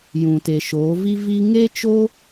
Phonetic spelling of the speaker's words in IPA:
jũ˨te˨ʃoː˨˦ vi˦vi˦ ŋe˦t͡ʃo˦

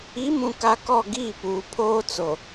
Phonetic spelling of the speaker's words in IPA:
i˨˦mũ˨ka˨ kɔ˦˨ ɡiː˦˨puː˨ pʰoː˦ t͡so˨

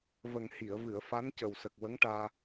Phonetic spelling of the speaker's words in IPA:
və˨˩ŋhi˨˩˨ə̯vɨ˨˩˨ə̯ fa˧˥ncə˨˩wsə˨˩k̚ wə˧˥ŋʈaː˧

